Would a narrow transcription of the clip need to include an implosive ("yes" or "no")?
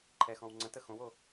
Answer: no